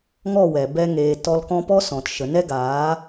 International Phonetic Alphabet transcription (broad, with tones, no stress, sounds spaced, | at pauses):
ŋ ɔ˦˨ w ɛ˨ b ɛ˧ ŋ eː˨ t ɔ˧ l k ɔ̃˧ p ɔ˦ s ɔ̃˨ t ʃ ə˨ n ɛ˦ ɡ aː˨˦